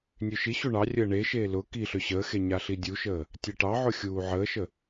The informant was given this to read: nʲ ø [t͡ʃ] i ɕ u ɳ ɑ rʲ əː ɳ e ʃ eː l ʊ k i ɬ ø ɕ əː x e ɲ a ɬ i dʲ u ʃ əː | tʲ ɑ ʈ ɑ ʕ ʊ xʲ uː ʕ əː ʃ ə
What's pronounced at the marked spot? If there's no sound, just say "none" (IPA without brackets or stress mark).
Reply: ʃ